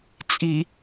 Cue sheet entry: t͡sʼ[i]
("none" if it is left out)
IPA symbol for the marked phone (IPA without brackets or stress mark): i